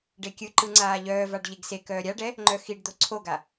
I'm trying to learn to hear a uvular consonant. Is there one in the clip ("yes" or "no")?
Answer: no